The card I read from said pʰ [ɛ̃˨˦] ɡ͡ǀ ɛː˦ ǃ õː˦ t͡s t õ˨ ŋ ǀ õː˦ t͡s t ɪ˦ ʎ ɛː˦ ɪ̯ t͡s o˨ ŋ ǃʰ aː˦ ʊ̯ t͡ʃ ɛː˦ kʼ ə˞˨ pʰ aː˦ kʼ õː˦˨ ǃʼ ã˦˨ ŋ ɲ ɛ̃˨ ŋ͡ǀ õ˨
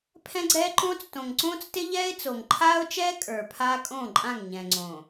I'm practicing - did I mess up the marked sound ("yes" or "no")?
yes